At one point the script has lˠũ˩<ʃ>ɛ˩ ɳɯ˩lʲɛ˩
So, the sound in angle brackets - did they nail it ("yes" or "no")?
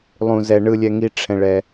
no